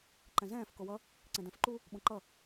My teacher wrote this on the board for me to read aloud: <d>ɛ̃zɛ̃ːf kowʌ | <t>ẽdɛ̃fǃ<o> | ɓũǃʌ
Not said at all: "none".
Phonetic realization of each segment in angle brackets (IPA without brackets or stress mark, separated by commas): ǃ, ǀ, u